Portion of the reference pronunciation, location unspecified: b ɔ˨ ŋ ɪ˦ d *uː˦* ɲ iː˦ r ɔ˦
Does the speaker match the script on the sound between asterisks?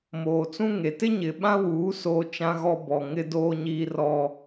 no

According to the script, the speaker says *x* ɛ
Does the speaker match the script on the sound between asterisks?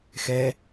yes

